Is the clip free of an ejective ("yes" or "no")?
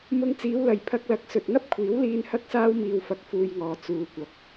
yes